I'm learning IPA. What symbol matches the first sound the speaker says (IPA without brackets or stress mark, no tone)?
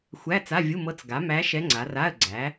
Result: xʷ